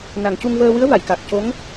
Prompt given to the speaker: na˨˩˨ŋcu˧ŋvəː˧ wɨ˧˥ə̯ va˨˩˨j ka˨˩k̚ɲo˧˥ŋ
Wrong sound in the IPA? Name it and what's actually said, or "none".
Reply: ɲ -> c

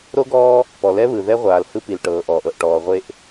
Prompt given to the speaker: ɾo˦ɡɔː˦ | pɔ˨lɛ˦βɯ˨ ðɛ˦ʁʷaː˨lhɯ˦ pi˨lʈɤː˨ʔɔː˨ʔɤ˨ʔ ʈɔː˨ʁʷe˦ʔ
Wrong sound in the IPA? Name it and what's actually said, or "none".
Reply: none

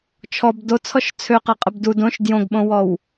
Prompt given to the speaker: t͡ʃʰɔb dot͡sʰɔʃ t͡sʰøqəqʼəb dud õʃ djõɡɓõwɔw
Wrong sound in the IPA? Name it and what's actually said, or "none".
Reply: none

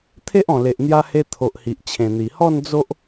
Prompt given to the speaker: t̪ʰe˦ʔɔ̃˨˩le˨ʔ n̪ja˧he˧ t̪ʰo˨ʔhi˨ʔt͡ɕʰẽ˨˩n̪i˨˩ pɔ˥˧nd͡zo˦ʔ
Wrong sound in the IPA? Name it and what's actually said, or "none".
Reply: p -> h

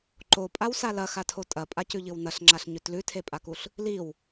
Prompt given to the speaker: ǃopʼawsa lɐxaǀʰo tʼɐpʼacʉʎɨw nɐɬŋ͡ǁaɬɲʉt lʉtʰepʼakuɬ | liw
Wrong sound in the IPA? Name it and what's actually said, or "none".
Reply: ǀʰ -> tʰ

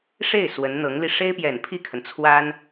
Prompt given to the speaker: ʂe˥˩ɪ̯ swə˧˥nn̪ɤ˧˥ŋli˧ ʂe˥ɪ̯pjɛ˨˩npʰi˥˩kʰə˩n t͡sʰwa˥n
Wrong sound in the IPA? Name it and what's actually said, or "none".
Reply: none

